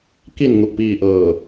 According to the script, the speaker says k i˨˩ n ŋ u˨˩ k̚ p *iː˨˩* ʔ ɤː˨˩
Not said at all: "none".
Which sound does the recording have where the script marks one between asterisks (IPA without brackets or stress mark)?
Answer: iː˨˩